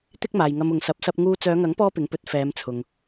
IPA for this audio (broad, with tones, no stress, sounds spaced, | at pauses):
t̪ ɪ˥ k̚ m aː˨ j ŋ ɐ˧ m ʊ˨ ŋ s ɐ˨˥ p̚ s ɐ˧ p̚ ŋ uː˧ t͡s œː˨˧ ŋ ɐ˨˥ ŋ p ɔː˧ p ɪ˨˥ ŋ p ɵ˨˥ t̚ f ɛː˨˧ m t͡sʰ ʊ˨ ŋ